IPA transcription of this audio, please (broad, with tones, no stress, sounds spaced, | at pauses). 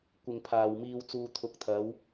kʷ ɪ˨ ŋ pʰ aː˨ w m iː˧ w t͡s uː˨ t̪ʰ ʊ˨ k̚ t̪ʰ ɐ˨˧ w